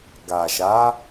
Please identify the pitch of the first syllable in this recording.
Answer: low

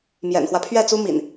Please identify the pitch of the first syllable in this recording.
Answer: low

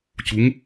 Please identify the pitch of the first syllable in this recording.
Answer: rising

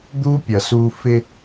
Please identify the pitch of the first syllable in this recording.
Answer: high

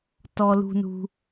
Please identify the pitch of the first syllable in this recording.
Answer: low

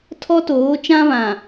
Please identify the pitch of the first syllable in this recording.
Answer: high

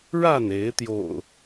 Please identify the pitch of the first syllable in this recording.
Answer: falling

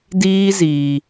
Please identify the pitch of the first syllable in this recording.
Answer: high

